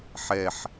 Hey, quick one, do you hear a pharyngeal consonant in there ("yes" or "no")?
yes